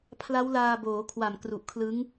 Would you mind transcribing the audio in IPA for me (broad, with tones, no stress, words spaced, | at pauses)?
pʰla˦˥wlaː˧boː˩˦kʰwa˨˩m kru˨˩ʔkʰlɯ˦˥ŋ